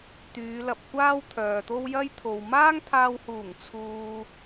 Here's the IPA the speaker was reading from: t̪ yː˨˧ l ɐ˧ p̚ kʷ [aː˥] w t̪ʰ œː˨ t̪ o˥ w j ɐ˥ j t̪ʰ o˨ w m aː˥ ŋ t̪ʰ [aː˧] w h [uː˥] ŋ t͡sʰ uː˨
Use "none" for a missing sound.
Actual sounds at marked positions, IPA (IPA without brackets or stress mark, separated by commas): aː˥, aː˧, uː˨˩